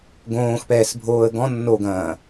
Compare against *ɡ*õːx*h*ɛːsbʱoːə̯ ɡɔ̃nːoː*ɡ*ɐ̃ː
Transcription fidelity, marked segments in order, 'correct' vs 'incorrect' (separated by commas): correct, incorrect, correct